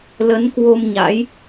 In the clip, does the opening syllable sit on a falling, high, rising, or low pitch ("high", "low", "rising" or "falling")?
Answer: rising